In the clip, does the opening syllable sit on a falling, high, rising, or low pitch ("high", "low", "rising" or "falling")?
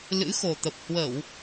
rising